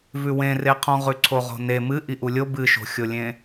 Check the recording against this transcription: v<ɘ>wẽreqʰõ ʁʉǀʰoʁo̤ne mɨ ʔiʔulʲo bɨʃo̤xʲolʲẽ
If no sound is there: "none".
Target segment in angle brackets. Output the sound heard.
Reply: ʉ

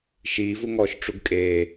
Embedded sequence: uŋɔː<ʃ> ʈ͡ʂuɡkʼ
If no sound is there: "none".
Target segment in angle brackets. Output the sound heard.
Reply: ʃ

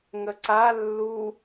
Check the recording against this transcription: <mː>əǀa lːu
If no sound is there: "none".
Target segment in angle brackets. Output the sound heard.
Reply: ŋ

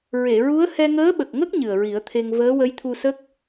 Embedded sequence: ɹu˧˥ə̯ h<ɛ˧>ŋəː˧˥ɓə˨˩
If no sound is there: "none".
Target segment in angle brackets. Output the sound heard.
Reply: ɛ˧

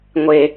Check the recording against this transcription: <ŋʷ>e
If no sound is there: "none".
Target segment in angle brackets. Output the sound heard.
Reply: ŋʷ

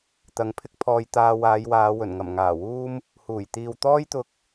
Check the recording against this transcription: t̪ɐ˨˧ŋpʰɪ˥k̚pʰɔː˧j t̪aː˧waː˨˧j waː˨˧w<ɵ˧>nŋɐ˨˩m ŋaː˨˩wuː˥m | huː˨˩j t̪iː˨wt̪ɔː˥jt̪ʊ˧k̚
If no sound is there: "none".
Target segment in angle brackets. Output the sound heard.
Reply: ɵ˨˩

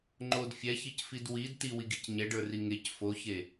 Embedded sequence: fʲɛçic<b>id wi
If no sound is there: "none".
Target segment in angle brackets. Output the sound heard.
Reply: f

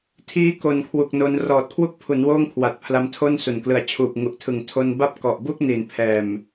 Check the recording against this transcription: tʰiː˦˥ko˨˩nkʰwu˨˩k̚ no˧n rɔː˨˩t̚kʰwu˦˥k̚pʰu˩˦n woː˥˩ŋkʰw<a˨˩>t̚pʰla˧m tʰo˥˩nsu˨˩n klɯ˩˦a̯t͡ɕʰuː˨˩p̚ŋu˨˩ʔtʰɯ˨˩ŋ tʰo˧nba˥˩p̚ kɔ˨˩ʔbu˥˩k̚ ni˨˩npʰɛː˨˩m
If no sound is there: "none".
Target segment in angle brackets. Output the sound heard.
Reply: a˨˩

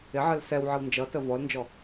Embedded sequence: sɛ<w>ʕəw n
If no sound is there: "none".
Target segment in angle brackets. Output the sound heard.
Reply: w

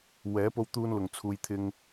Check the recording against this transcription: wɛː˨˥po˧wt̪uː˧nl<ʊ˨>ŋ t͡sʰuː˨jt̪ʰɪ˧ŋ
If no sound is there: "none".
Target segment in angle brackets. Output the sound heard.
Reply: ʊ˨˩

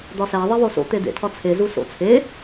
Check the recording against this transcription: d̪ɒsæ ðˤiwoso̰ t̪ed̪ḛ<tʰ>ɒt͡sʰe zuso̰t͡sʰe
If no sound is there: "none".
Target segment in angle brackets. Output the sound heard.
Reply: tʰ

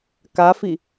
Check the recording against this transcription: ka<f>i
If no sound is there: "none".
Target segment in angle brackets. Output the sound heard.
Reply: f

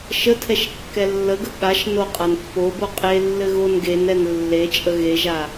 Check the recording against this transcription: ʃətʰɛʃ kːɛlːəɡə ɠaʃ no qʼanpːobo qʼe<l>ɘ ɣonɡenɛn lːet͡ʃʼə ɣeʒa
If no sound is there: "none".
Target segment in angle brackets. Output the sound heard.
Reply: lː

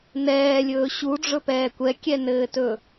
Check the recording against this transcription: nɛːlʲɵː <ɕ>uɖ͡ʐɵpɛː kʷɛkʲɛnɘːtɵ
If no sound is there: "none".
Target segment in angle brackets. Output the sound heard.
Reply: ɕ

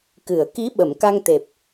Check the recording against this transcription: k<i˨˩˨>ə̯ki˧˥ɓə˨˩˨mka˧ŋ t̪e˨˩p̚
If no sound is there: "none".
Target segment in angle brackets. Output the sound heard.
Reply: ɨ˨˩˨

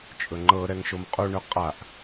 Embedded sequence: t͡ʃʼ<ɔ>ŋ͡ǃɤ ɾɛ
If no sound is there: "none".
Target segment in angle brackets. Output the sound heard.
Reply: ɵ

